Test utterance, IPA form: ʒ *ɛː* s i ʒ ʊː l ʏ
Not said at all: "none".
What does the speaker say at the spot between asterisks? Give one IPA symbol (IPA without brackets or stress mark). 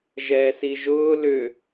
ɛː